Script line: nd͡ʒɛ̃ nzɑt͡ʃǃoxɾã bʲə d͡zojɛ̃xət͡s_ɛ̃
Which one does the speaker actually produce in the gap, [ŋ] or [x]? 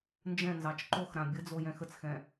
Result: x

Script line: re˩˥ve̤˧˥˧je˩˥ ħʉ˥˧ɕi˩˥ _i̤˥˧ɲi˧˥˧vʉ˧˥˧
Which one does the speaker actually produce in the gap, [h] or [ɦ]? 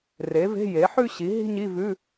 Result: ɦ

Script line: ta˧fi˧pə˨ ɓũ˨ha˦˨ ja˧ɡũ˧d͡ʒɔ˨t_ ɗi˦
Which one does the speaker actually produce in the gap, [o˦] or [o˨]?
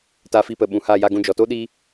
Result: o˦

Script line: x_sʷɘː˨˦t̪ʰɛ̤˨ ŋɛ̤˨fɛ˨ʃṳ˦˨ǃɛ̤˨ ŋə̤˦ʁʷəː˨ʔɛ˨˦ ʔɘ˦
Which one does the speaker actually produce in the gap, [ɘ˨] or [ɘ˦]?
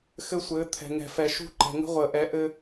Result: ɘ˦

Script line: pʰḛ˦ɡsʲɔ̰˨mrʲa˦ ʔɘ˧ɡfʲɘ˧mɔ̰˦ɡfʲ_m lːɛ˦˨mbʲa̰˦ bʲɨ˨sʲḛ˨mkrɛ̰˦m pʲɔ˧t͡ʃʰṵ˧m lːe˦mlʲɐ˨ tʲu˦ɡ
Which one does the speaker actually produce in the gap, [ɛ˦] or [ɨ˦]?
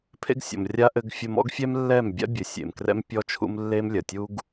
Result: ɛ˦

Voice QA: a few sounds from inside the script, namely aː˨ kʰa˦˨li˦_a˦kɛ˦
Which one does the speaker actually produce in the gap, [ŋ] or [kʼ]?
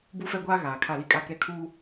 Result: kʼ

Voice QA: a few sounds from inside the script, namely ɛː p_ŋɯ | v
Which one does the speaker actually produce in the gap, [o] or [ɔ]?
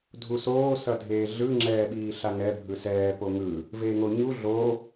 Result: o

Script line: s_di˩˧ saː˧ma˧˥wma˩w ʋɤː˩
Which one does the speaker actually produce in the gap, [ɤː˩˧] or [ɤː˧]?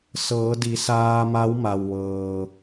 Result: ɤː˩˧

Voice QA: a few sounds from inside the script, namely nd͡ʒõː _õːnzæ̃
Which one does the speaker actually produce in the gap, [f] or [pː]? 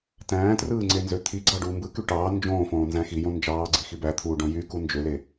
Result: f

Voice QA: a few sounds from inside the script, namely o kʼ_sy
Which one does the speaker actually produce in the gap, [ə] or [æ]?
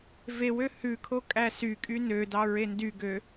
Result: æ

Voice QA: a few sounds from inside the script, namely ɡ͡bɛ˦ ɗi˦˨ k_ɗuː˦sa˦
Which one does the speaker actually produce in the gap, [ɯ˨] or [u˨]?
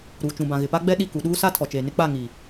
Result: u˨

